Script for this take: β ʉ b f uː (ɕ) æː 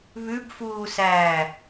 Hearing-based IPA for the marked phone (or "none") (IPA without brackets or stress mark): s